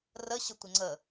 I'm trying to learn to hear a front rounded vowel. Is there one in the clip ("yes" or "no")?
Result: no